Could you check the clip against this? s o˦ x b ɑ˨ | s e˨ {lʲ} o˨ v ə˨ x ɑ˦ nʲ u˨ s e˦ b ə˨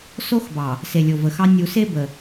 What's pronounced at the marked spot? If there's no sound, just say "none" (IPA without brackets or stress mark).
lʲ